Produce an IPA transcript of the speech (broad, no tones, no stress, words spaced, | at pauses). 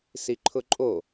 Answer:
siǃʰʊǃʼo